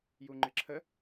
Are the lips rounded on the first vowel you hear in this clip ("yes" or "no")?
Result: yes